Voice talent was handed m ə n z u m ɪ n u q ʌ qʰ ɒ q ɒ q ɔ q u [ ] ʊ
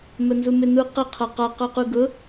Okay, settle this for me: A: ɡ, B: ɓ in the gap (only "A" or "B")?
A